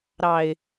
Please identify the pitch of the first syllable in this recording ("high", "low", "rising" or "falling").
low